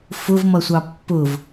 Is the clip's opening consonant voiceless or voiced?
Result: voiceless